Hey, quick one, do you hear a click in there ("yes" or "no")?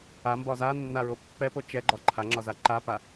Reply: yes